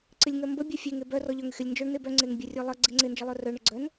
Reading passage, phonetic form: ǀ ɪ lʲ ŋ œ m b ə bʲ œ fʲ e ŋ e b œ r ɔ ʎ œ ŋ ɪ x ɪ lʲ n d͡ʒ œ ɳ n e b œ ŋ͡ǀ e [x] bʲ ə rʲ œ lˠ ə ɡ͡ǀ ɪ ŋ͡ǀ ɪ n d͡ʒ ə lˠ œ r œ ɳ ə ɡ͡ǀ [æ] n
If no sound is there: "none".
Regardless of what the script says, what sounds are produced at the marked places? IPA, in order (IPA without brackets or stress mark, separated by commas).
ŋ, œ